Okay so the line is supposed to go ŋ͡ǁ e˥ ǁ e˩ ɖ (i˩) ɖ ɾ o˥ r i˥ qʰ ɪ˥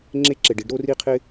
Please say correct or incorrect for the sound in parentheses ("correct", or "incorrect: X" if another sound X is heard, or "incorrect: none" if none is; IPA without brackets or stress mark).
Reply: incorrect: i˥